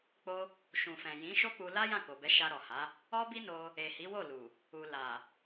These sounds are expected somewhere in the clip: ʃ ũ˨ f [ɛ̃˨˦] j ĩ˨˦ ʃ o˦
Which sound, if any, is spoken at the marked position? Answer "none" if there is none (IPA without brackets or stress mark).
ɛ̃˨